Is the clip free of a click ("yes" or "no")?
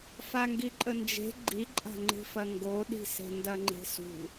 no